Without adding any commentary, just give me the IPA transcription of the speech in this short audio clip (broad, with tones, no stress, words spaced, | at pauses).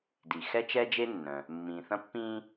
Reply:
di˩ xɛ˥t͡ʃɛ˥d͡ʒe˥nːœ̃˩ | mːĩː˩θɐ̃˧pːĩː˧